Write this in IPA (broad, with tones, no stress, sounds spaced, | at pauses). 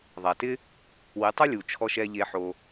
ðˤ a˨ t ɪ˦ | w ɪ˨˦ tˤ ʊ˦ lʲ u˨ t͡ʃʰ ɔ˧ ʃ ɛ˧ ʎ e˧ ħ o˧